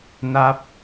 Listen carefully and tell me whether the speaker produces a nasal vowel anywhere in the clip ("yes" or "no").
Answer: no